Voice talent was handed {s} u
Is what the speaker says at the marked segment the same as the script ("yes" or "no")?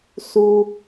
yes